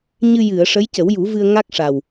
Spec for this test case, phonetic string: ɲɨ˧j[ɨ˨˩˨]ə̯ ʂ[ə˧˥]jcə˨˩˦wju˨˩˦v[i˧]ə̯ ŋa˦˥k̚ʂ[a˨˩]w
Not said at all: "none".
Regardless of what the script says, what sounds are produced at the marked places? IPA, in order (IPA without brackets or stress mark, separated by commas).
ɨ˨˩˨, ə˧˥, ɨ˧, a˨˩